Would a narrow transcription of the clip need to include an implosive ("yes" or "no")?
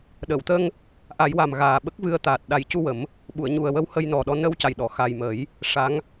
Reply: yes